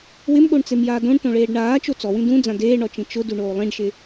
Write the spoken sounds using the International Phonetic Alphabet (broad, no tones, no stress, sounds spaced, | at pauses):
w ɪ m ɠ o ɳ t͡s e m j aː d õ ɳ t õ ɭ eː ɖ ɳ aː t͡ʃ o t͡s ɔ w ĩ d ũ d͡z ã d eː ɳ ɔ t͡ʃ ĩ t͡ʃ ʊ d u ɳ oː lˠ ĩ ɖ ʃ ɪ